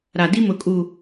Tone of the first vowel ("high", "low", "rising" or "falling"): low